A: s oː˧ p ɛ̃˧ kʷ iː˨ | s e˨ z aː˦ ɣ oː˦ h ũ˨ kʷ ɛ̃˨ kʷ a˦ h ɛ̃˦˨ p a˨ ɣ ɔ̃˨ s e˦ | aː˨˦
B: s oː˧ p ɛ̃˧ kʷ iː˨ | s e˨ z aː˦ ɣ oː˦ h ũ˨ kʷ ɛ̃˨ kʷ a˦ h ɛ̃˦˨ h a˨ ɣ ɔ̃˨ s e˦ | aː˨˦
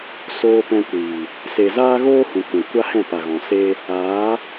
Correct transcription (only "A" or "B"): A